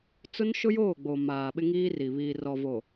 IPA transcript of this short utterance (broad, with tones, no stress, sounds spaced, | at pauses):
t͡s ʊ˦ n ʃ ʊ˦ j oː˦˨ ɡ͡b o˨ m aː˨ ɓ ɪ˦ ŋ iː˦ r i˨ β iː˨ r ɔ˨ v o˨